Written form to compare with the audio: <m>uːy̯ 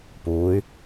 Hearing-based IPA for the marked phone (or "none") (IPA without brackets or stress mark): p